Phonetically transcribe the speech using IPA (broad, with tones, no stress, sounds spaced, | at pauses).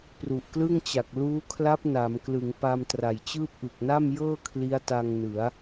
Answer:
p r u˨˩ ʔ k l ɯ˥˩ ŋ t͡ɕ a˨˩ k̚ l uː˦˥ kʰ l a˦˥ p̚ n a˩˦ m k l ɯ˩˦ ŋ p a˧ m t r a˨˩ j t͡ɕ ɯː˥˩ p̚ ʔ ɯ˨˩ k̚ n a˥˩ m j ɤː˥˩ kʰ l i˦˥ a̯ t a˧ ŋ n ɯ˩˦ a̯